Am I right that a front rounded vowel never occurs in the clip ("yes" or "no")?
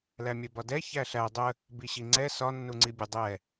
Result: yes